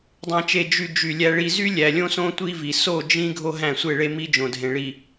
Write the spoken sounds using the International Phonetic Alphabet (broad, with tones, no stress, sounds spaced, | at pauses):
dˤ æ̃˨ t͡ʃ e˨ d͡ʒ y˨ d͡ʒ y˨ lʲ æ˨ ɭ i˨ z y˦ lʲ æ˨ lʲ õ˦ s õ˦ tʷ i˦ v i˨ s o˦˨ d͡ʒ ĩ˦ ɡʱ o˦ ɦ æ̃˦˨ sʷ e˦˨ ɭ e˦ m i˦ d͡ʒ õ˨ dʱ ẽ˨ ɭ i˨